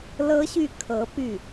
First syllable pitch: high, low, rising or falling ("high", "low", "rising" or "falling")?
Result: high